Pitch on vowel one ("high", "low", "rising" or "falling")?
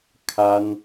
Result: high